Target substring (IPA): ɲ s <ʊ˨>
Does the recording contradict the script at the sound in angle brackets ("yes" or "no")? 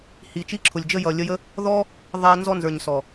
yes